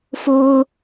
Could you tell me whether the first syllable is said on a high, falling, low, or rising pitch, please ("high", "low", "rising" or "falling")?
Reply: high